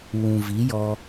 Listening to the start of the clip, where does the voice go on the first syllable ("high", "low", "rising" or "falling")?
low